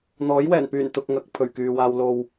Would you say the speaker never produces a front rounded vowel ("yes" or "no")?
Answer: no